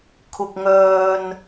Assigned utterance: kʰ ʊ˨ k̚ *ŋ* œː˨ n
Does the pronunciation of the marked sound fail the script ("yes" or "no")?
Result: no